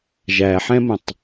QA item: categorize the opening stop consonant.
plain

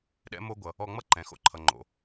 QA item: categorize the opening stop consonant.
implosive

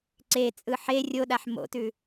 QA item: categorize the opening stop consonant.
click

